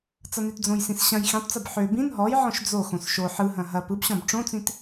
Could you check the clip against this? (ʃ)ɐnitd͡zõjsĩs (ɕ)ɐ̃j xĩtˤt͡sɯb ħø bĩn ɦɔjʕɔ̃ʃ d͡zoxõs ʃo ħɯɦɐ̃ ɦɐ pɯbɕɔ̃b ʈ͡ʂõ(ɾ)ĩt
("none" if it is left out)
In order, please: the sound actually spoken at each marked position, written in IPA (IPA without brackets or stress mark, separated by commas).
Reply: t͡s, ɕ, t͡s